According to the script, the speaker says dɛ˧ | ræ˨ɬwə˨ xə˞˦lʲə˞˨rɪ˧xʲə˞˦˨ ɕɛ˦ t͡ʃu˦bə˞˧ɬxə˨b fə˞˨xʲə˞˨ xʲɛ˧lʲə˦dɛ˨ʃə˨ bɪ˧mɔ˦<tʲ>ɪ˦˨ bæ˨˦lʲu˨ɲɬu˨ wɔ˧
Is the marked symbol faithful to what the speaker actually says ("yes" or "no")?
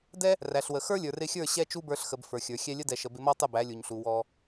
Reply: no